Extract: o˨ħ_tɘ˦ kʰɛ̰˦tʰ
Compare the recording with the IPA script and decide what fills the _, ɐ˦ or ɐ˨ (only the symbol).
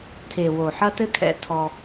ɐ˦